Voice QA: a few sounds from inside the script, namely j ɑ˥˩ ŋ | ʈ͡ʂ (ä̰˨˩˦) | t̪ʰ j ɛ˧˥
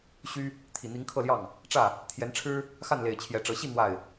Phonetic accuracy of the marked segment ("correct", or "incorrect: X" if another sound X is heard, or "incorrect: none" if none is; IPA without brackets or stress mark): incorrect: ä˥˩